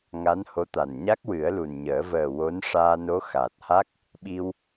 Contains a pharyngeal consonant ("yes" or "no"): no